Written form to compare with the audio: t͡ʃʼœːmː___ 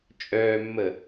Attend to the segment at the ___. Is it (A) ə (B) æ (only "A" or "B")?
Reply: A